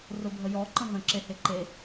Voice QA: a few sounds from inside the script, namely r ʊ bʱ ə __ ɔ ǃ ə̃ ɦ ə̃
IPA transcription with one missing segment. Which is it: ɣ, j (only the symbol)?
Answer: j